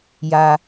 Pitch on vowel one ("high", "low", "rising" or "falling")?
low